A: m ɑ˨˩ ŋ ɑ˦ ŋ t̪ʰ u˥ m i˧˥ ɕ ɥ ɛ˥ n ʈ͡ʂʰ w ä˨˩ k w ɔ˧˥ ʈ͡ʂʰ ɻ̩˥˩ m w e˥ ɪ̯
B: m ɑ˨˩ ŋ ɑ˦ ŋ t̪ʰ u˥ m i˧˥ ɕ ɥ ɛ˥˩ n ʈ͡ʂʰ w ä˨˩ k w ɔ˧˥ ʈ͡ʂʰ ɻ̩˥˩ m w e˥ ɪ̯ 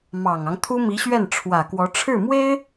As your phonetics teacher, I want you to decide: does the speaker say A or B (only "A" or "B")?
B